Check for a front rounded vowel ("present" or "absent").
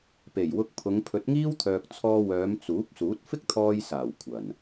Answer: present